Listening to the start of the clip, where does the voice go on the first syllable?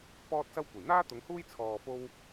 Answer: high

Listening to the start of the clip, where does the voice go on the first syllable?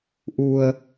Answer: low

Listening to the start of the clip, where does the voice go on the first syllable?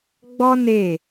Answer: high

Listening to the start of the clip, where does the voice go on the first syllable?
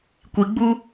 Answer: low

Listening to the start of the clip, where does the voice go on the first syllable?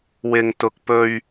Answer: low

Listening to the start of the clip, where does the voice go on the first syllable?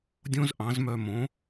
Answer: high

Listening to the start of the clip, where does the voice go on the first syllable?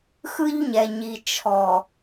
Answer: high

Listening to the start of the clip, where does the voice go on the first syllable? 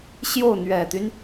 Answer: falling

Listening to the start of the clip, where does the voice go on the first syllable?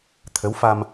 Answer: rising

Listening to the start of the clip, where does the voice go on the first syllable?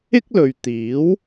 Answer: high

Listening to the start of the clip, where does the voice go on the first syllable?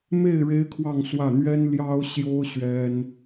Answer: falling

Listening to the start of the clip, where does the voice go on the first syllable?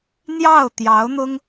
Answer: falling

